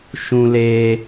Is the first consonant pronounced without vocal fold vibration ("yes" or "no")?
yes